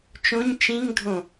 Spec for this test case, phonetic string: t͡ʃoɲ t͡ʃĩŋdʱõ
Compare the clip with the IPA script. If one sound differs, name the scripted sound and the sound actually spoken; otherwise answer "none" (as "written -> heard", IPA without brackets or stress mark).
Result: o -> õ